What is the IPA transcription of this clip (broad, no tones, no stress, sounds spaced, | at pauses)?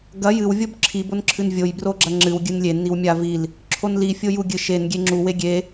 ɡ ɐ j ɨ w vʲ o b ǁʰ i b o n ǁʰ ɨ n vʲ o j b r o ɡ͡ǁ ɐ ŋ͡ǁ ɨ w ɡʲ ɨ n lʲ e n i w mʲ a v i l | ǁʰ o n l i fʲ o j u ɡʲ ɨ ʃ e n ɡʲ e ŋ͡ǁ u w e ɡʲ e